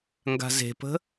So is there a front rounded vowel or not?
no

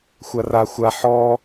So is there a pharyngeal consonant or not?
yes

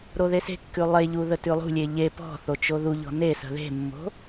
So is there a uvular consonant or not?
no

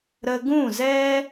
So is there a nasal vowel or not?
yes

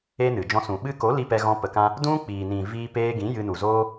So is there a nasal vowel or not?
yes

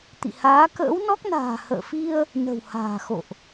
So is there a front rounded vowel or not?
no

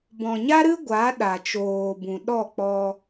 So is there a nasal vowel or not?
yes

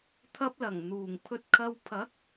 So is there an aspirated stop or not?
yes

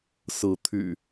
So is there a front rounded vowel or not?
yes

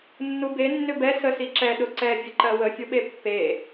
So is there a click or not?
yes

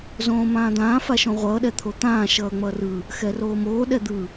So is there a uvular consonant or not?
yes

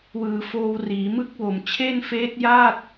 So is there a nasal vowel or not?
no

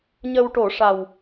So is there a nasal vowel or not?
no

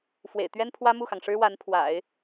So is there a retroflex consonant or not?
yes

